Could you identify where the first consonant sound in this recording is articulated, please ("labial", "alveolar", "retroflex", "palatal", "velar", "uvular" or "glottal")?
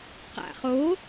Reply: uvular